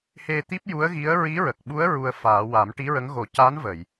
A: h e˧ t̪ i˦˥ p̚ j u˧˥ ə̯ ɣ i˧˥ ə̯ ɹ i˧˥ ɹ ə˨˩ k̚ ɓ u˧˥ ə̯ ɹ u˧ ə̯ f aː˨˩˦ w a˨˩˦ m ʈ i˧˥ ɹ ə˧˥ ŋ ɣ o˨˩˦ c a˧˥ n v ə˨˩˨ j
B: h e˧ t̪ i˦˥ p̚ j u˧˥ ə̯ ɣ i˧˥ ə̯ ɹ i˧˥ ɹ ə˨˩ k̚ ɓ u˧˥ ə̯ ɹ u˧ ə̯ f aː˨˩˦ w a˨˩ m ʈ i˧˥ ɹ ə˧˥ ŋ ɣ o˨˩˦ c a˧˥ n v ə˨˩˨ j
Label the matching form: A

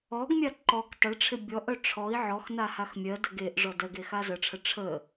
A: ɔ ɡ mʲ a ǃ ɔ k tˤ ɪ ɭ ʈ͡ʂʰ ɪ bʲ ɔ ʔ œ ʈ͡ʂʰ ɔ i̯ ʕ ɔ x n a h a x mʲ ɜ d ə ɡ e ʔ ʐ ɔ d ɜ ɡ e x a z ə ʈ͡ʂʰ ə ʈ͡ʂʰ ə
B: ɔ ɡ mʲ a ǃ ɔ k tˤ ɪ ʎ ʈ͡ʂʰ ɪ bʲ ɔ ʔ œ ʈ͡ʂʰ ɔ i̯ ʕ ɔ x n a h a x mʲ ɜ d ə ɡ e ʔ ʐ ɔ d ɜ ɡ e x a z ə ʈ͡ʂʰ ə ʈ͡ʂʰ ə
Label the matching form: A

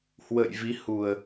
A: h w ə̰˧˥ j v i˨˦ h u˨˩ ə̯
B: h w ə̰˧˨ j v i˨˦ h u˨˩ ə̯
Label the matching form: B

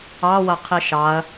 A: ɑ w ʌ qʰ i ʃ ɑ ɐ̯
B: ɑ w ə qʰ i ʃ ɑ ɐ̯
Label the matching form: A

